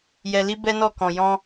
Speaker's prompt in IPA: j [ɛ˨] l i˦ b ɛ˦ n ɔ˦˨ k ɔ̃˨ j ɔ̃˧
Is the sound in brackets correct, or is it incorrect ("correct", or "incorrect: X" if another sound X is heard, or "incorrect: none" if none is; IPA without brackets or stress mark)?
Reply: incorrect: ɛ˧